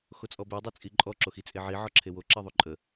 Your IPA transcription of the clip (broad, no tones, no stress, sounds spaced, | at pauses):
x o t͡sʼ ɔ b e dˤ o t͡sʼ i ǃʼ ɔ ǁ o x i t͡sʼ e ʕ i ʕ ɔ ǁʰ e w o ǁ i ðˤ o ǃʼ ə